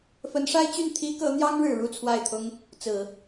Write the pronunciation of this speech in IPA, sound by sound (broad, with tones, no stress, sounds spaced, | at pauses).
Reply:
f ə˧˥ n ʂ a˥ ɪ̯ t͡ɕ y˥˩ n t̪ʰ i˥ k ɤ˧˥ n̪ j ɑ˥ ŋ ɻ ɻ̩˨˩ ɻ u˥˧ t͡sʰ w a˥˩ ɪ̯ t̪ʰ ʊ˥ ŋ | t͡s ɹ̩˨˩˦